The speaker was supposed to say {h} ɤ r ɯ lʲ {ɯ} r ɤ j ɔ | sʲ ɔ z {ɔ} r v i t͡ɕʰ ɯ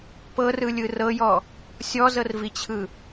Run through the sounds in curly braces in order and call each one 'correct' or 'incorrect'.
incorrect: p, correct, incorrect: ɤ

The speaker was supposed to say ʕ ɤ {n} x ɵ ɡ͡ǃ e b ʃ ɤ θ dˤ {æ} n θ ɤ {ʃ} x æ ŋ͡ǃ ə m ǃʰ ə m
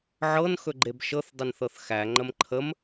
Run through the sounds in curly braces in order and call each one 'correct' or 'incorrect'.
correct, incorrect: ə, incorrect: θ

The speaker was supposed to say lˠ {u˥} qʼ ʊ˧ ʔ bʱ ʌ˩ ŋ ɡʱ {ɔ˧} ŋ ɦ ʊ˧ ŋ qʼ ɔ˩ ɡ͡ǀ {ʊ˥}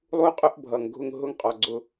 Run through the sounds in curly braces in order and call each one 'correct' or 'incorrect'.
incorrect: u˧, incorrect: ʊ˧, incorrect: ʊ˩

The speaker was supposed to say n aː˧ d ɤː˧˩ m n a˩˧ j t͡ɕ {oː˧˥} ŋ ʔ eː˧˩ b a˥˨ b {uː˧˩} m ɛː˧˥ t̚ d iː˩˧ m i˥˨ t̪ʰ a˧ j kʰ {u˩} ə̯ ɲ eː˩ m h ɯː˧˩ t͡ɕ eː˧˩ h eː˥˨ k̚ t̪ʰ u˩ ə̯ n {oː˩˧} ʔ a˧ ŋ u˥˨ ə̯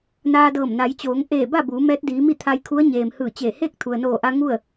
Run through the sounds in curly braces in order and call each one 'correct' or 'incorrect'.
incorrect: oː˩˧, incorrect: uː˩˧, incorrect: u˧˥, incorrect: oː˧˩

